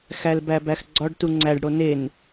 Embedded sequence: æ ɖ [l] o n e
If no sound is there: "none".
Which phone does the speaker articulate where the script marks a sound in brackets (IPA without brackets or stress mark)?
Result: ɽ